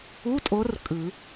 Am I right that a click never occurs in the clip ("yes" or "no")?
yes